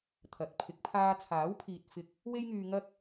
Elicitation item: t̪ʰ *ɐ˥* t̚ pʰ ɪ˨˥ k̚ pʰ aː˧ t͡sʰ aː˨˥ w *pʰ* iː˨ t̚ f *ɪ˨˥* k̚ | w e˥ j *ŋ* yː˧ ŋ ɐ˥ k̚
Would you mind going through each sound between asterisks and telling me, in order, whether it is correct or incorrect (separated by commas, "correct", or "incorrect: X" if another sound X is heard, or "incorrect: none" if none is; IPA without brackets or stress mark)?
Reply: incorrect: ɐ˨˥, correct, incorrect: ɪ˧, correct